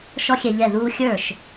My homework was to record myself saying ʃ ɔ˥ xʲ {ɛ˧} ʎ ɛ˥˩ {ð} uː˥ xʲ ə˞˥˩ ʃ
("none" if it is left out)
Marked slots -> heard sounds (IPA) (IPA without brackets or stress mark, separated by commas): ɛ˧, ð